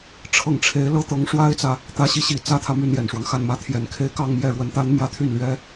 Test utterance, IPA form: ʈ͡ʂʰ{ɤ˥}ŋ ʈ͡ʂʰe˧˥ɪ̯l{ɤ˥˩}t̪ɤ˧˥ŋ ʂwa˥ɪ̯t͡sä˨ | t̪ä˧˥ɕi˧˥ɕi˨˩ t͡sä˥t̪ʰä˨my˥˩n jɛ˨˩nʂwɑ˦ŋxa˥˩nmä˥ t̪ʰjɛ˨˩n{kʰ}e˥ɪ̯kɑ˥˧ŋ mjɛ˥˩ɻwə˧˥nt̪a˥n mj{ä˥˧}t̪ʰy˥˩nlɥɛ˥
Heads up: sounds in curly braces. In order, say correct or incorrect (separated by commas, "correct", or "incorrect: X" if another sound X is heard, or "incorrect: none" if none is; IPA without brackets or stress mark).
incorrect: ɤ˥˩, incorrect: ɤ˥, correct, correct